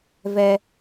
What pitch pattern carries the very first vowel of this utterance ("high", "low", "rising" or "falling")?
high